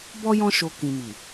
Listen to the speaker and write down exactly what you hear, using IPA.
b ɔ˦ j ɔ̃˦ ʃ o˧ k ĩ˨ m i˨

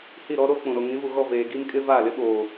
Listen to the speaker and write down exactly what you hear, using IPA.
h i˦˨ ɾ ɔ˦ ɾ o˦ k͡p ũ˨ ɾ o˨ ŋ ĩ˨˦ v u˨ ɣ ɔ˦˨ v eː˨ ɡ i˦ m kʼ ɪ˦ v aː˦˨ l ɪ˦ ɓ oː˨

